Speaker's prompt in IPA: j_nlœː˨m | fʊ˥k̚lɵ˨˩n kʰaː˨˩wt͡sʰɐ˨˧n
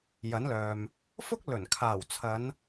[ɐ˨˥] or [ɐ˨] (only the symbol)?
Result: ɐ˨˥